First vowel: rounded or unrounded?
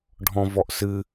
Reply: rounded